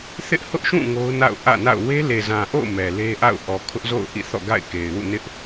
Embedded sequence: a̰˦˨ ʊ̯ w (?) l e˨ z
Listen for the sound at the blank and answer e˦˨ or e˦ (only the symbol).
e˦